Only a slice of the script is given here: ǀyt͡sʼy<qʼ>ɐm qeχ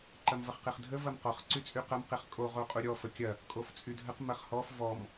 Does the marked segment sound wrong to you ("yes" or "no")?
yes